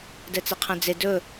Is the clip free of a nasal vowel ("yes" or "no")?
no